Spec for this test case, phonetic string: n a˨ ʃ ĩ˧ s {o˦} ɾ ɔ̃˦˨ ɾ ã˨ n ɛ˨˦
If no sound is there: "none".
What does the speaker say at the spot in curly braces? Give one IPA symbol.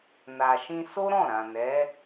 o˦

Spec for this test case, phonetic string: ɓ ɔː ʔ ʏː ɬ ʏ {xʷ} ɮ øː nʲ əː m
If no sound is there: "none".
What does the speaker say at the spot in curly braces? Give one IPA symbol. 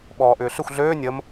xʷ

